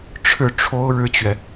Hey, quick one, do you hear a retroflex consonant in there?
yes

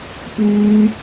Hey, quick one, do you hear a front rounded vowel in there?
yes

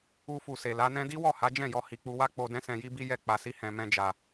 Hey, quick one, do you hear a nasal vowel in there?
yes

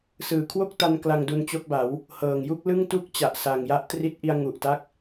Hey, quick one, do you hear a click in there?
no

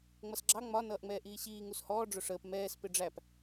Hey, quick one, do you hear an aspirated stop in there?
no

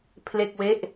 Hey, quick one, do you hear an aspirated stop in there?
yes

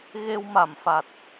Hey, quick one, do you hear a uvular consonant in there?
no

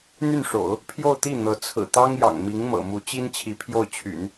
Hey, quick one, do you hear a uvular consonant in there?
no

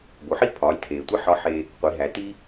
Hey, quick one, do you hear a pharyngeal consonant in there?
yes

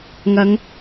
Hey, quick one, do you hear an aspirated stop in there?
no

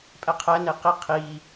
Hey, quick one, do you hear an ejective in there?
yes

